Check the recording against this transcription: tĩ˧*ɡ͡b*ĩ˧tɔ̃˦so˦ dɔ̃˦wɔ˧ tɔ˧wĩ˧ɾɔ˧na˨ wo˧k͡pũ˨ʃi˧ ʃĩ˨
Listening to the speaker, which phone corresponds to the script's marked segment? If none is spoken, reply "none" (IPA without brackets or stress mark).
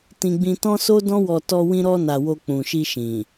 ɡ͡b